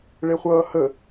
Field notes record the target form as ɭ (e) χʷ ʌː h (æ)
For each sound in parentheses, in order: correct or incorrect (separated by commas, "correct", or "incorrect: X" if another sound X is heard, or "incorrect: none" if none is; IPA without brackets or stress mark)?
correct, incorrect: ə